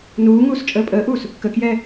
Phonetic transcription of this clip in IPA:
n uː ŋ uː s t͡ʃʼ əː pʼ əː ʔ uː s | k ə k j ɛː

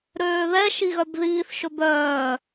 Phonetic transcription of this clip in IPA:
ɾ øː ð ɛ ʃ i ɣ œ b ð iː θ ʃ ɵ b œː

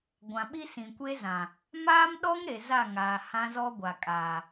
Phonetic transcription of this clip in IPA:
ɡʷ ã˨ ɓ i˦ s ĩ˨ kʷ e˦ z ã˨ | m aː˦ m ɗ ɔ˦ ŋ ɾ e˨ z a˦˨ ŋ aː˨ h ã˦ z ɔ˦ ɡʷ a˨ kʼ aː˨

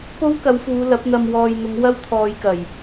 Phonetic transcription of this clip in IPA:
p o˥ w k ɐ˨˧ w f uː˨˧ l ɐ˨˥ p̚ n̪ ɐ˨ m w ɔː˨ j n̪ ʊ˨˧ ŋ w ɐ˥ w t̪ʰ ɔː˨˧ j k ɐ˨˩ j

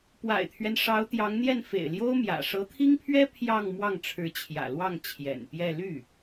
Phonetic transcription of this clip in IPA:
p w a̰˨˩ ɪ̯ t̪ʰ ɥ ɛ˦ n ʂ ɑ˧˥ ʊ̯ t̪ j ɑ˧˥ ŋ n̪ j ɛ˥˩ n f ḛ˨˩ ɪ̯ l j o˥ ʊ̯ m j ä̰˨˩ ʂ ɤ˧˥ t̪ʰ i˥ ŋ pʰ ɥ ɛ˥ pʰ j ɑ˥˧ ŋ m w ɑ˥˩ ŋ ʈ͡ʂʰ ɻ̩˧˥ t͡ɕʰ j ä̰˨˩ l w ɑ˥˩ ŋ t͡ɕʰ j ɛ̰˨˩ n p j ɛ˥˧ l y˥˩

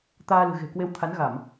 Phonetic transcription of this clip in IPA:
t̪ aː˧ l ɨ̤˨˩ ɣ e̤˨˩ k w e˨˦ w t̪ʰ a˨˦ n ɣ a˧˩˨ m

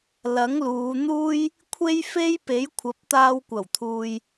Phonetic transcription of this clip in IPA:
l ɐ˨˥ ŋ l uː˨˧ n̪ uː˥ j | kʷʰ e˥ j f e˥ j p e˨˥ j kʷʰ ɐ˨˥ p̚ t̪ aː˧ w kʷ ɐ˨˩ w t̪ʰ uː˨ j

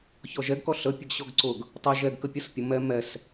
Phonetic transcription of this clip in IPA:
ç ɔ ʒ ɛ ɡ k ɔ ɬ ə pʲ ə ɡ ɕ ɔ ɡ ǀ ʊ ɡ | tˤ ɛ ʒ ɛ ɡ k ə pʲ ə s pʲ ʊ m ɛ m ɛ s

